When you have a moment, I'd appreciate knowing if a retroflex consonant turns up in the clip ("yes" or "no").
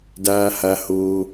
no